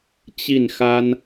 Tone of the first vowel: falling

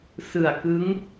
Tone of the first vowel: low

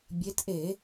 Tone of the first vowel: rising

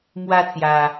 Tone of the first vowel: high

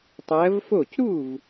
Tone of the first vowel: rising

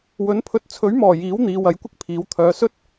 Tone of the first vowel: rising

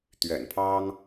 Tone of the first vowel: low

